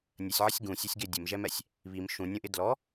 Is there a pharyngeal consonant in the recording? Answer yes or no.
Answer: yes